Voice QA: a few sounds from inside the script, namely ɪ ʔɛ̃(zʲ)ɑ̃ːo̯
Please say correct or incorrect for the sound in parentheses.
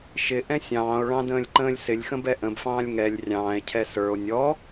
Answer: incorrect